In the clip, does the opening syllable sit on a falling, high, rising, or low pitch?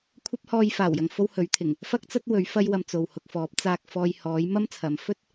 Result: high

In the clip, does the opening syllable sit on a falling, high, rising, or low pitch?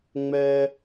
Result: high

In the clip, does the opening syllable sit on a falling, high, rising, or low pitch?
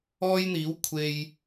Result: high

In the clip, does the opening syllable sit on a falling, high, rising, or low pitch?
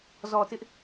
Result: low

